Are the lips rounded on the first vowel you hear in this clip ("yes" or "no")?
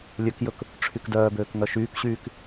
yes